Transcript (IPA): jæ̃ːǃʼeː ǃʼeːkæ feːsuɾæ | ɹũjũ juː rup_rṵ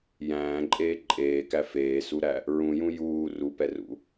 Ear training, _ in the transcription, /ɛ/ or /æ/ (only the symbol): ɛ